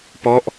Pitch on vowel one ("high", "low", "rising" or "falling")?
falling